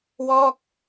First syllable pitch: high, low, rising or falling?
falling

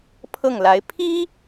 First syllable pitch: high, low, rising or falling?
falling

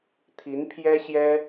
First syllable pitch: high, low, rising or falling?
rising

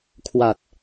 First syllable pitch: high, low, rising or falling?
low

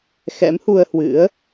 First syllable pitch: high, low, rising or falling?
rising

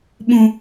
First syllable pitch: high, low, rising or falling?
low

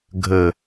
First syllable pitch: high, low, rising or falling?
low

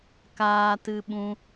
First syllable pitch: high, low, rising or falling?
high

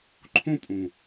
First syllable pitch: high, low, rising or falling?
high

